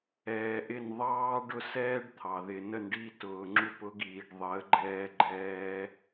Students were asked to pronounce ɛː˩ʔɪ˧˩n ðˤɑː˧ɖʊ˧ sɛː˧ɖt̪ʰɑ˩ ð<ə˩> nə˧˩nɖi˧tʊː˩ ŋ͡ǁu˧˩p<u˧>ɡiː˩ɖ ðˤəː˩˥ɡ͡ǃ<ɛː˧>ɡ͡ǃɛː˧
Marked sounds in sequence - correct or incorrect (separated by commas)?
incorrect, incorrect, correct